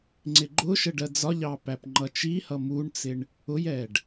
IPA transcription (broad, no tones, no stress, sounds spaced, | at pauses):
ŋ͡ǀ ɪ ɡ͡ǃ ʊ ʃ ə ɖ ɜ d͡z ɒ ʎ ɑ p æ p ŋ͡ǃ ʌ t͡ʃ i h ʌ m u ɳ t͡s ɪ ɳ | ʊ j ɛ ɖ